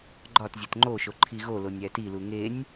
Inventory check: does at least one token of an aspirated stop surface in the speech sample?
yes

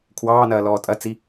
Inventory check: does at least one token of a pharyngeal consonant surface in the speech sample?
no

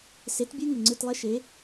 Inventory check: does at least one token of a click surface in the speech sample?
yes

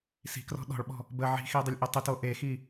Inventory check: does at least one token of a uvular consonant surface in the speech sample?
no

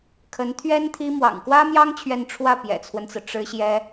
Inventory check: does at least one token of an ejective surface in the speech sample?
no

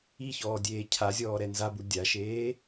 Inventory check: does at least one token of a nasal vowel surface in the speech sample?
no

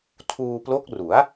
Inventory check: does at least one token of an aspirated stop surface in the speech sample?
yes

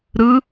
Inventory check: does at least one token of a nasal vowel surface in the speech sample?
no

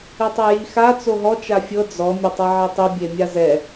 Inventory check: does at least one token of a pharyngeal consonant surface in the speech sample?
yes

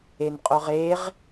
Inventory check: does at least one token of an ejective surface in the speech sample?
yes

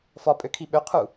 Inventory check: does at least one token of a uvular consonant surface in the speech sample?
yes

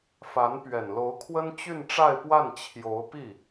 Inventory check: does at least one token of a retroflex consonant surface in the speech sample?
yes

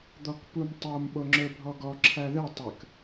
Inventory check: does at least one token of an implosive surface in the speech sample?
yes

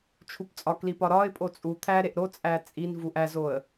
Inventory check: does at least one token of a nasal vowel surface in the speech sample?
no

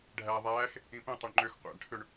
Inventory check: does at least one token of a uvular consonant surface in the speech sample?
yes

